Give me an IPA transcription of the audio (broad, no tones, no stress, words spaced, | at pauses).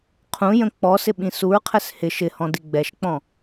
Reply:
qʰũ jə̃k͡pɔsɪ ɓĩsuɹqʰɛs hɪ ʃɪhɔ̃ diɡ͡bɛʃk͡pɔ̃